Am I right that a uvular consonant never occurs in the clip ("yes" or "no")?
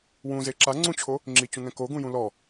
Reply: yes